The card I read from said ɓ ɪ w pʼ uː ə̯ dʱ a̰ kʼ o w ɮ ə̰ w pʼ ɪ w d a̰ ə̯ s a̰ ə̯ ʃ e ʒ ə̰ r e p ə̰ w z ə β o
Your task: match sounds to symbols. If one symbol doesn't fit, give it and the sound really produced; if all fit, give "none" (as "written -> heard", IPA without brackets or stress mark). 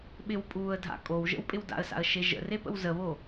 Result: ɮ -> ʒ